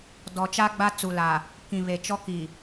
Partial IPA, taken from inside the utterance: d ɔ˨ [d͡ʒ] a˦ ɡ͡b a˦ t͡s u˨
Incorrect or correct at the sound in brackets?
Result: incorrect: t͡ʃ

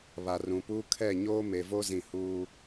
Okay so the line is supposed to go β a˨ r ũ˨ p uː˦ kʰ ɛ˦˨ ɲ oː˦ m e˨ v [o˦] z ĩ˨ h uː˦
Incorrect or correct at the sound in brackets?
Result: correct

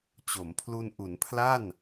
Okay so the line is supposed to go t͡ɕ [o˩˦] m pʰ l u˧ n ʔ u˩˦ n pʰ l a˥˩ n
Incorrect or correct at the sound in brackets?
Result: correct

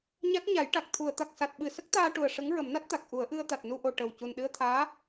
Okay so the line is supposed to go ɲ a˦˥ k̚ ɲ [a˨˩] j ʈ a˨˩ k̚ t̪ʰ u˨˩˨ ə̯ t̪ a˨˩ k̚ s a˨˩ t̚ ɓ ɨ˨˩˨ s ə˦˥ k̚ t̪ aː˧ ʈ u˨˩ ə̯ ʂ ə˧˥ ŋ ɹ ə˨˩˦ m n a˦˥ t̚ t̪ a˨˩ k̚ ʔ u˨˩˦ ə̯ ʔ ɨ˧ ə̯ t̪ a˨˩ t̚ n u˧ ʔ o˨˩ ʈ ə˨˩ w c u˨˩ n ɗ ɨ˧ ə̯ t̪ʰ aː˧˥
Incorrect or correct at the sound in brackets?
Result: incorrect: a˨˩˦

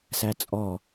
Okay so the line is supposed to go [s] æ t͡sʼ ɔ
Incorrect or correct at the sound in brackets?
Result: correct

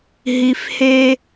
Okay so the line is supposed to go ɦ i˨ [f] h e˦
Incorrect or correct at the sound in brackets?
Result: correct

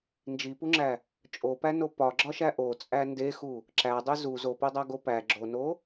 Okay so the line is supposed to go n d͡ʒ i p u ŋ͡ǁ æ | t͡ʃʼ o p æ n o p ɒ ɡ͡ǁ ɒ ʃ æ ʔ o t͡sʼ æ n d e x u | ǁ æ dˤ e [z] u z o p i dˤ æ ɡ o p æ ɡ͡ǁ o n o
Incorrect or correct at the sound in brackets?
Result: correct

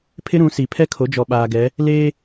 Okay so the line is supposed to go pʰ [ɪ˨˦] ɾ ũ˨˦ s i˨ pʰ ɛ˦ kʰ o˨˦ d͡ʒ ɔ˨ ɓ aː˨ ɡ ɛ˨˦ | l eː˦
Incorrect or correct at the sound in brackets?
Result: incorrect: ɪ˦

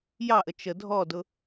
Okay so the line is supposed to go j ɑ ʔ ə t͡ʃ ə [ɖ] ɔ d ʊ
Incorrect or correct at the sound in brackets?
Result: incorrect: dʱ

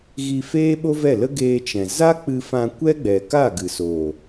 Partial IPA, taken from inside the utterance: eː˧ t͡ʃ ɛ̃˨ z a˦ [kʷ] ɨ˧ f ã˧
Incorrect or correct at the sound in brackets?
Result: incorrect: k͡p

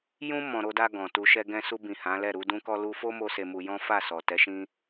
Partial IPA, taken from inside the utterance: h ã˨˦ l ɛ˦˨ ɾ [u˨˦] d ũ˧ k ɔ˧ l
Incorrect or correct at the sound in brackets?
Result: correct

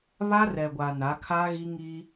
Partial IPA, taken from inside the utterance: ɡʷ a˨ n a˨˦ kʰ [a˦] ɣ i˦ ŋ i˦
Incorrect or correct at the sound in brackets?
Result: correct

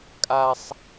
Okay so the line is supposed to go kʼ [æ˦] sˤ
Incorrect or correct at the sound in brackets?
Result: incorrect: a˦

